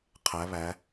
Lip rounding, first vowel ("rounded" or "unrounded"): unrounded